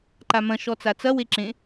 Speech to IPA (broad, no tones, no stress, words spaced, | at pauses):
ǃamɐ̃ ʃɔt͡sat͡sɐ weǁẽ